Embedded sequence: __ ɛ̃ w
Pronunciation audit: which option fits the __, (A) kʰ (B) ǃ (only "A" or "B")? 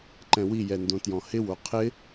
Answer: B